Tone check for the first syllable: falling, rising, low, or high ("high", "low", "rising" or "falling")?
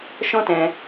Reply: high